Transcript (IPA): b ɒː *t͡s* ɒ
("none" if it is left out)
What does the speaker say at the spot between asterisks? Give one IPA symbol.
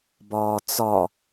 t͡s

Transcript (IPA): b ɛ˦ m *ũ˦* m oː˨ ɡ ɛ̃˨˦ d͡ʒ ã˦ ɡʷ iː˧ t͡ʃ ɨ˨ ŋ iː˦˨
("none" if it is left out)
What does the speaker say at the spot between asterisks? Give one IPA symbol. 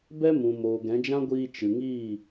ũ˨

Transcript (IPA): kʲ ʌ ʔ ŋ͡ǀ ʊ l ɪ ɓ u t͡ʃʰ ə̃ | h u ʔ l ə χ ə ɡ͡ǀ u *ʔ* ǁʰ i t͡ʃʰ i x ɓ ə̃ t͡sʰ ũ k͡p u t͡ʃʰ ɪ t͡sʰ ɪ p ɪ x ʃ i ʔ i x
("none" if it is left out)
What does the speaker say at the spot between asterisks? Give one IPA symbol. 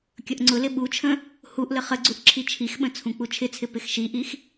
ʔ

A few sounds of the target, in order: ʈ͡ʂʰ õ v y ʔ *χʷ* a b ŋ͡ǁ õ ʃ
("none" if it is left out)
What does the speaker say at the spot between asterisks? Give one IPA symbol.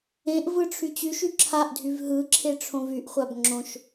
χʷ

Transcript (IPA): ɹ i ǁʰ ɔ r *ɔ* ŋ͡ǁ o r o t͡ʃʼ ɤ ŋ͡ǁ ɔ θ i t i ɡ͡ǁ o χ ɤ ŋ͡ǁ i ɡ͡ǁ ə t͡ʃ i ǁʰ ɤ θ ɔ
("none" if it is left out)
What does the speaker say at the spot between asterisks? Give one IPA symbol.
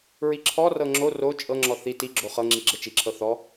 ɤ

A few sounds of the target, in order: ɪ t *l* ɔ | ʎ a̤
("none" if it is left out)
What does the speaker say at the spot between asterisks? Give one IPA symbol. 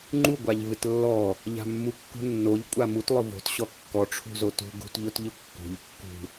lː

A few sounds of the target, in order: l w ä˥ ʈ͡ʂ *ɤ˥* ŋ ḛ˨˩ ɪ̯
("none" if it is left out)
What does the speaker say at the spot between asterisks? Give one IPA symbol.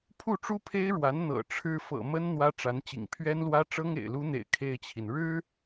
ɤ˥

